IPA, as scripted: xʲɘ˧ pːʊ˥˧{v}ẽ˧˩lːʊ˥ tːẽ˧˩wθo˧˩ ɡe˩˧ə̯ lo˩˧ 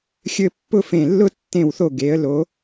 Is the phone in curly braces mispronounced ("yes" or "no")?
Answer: yes